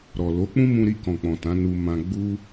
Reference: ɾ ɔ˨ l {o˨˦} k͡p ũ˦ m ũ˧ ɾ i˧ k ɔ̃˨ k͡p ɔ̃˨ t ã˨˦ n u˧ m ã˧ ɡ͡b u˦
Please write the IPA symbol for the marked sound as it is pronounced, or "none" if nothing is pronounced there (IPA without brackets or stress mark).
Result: o˨˦